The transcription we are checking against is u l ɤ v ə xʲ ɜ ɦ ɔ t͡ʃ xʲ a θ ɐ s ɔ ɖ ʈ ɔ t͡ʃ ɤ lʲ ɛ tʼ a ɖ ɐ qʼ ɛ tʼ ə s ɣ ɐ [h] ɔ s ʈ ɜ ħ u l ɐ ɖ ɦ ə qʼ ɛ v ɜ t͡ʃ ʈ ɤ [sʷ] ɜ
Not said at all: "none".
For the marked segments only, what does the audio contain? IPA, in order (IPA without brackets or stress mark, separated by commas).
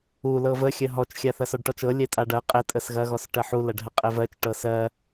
ɣ, s